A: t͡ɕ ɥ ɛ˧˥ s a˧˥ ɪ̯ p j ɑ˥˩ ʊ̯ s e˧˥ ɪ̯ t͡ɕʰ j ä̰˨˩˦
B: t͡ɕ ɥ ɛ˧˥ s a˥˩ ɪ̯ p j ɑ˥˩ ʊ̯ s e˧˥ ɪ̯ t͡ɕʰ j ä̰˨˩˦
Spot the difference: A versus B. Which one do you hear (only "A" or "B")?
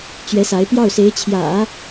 A